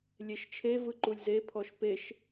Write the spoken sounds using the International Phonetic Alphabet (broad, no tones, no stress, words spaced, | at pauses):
lʲeʃt͡ʃʰevɯ ǃulʲzepʰɔʃ peʃ